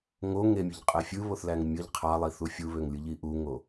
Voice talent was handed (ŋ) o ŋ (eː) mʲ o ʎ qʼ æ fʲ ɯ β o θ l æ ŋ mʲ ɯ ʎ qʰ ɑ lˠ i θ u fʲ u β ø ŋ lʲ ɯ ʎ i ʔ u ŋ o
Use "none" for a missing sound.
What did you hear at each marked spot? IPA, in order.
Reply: ŋ, e

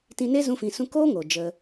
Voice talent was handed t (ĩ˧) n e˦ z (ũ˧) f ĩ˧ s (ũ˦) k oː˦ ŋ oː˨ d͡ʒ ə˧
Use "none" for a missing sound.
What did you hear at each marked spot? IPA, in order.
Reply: ĩ˧, ũ˦, ũ˦

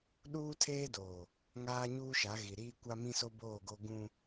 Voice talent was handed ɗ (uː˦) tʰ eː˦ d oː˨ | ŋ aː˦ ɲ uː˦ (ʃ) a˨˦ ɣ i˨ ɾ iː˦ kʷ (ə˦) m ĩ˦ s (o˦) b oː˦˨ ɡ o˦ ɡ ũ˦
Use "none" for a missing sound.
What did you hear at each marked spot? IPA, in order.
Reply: uː˦, ʃ, a˦, o˦

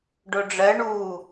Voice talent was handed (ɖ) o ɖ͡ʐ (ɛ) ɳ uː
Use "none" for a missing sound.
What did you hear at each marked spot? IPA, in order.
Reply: ɖ, ɜ

